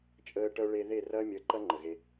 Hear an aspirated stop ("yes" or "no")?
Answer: no